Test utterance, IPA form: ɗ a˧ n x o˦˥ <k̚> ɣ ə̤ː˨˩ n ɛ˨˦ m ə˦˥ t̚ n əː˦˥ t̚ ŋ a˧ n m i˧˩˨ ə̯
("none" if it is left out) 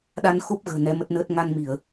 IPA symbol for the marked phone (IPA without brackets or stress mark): p̚